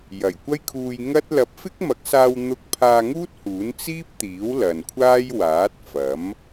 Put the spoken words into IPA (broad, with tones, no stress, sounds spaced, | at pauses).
j ɐ˨˩ j kʷ ɐ˥ j kʰ uː˧ j ŋ ɐ˥ t̚ l ɐ˨˥ p̚ f ɪ˥ k̚ m ɐ˨˥ k̚ s aː˧ w n̪ ʊ˧ k̚ pʰ aː˧ ŋ uː˥ t̚ h uː˨˥ n t͡s iː˥ p̚ t̪ iː˨˥ w l ɐ˨ n kʷʰ aː˥ j w aː˨˥ t̚ f ɐ˨˥ m